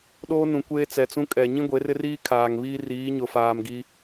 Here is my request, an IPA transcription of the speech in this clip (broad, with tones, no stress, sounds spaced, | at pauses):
ɗ oː˦ n ũ˨ kʷ eː˦ t͡s ɛ˨ t͡s ũ˦ kʼ ɛ˨ ɲ ĩ˦ ɡʷ e˨˦ r ɪ˦ r iː˦ kʰ aː˨ ŋ β iː˦ r iː˨˦ ɲ ʊ˨ f aː˨ m ɡ i˦